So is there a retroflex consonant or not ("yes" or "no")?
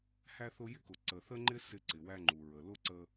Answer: no